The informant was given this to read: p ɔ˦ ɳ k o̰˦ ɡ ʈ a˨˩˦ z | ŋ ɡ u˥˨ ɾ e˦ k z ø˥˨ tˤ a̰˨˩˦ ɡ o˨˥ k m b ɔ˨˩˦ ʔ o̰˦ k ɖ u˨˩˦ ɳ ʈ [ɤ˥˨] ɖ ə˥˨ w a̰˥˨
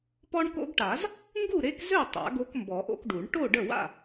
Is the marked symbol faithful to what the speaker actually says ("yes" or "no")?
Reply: no